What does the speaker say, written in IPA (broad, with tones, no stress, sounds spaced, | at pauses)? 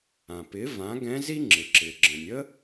ã˩ p ɪ˩˥ v ã˩˥ ɡ ɛ̃˧˥ z i˥ ŋ͡ǁ ɪ˩ ǁ ɪ˩ ɡ͡ǁ ə̃˩ nʲ ə˥